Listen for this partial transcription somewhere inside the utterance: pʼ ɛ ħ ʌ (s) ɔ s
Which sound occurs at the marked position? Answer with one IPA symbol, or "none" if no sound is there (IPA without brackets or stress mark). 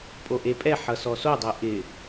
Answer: s